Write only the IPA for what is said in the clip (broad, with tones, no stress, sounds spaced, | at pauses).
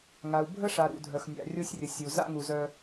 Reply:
ŋ a˨ u̯ bʱ ə˦ ʂ a˨ ɾ ṵ˨ dʱ œ˨ x nʲ a̰˨ rʲ o˦ sʲ rʲ ə˨ sʲ u˨ z a̰˦ ŋ u˨ z œ˦